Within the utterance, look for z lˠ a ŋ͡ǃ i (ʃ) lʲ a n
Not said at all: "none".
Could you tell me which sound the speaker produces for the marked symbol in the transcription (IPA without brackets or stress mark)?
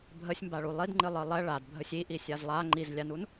z